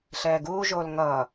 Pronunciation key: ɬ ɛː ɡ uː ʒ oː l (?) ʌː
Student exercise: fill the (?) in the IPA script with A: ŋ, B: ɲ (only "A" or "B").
A